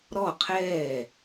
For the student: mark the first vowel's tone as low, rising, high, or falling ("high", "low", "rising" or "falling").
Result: falling